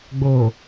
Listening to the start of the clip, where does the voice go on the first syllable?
low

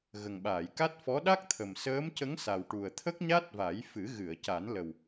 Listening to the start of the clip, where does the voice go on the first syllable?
low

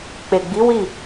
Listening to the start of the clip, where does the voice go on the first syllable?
low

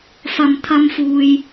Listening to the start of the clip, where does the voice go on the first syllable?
low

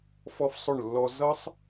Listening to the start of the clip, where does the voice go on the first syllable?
high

